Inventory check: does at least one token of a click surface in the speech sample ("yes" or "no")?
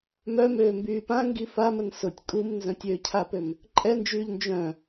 yes